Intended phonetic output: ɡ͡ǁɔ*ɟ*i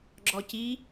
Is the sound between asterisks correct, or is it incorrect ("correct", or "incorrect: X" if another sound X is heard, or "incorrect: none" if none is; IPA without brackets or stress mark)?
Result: incorrect: c